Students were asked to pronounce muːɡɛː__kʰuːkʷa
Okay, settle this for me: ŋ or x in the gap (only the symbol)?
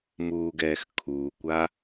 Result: x